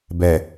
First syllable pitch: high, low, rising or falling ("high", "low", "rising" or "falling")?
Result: low